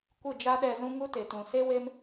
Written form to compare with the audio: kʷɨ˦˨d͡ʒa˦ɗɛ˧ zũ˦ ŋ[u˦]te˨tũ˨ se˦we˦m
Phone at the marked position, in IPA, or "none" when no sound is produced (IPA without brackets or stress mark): u˦